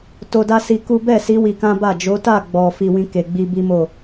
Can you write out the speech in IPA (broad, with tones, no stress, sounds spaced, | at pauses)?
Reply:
t o˧ d a˦ s i˧ k u˦ b ɛ˦˨ s i˨˦ w i˧ k ã˦ b a˦˨ d͡ʒ o˨˦ t a˦˨ ɡ͡b ɔ˨ f i˧ w ĩ˧ k e˨ ɡ͡b i˧ b i˦ m o˦˨